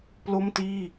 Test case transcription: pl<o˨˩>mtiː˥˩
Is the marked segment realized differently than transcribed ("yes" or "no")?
yes